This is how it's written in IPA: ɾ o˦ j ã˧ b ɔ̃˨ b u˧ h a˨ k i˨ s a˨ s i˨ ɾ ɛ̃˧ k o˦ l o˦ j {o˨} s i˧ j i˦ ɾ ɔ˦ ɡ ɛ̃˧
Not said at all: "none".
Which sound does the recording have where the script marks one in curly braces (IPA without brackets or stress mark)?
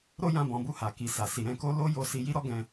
o˧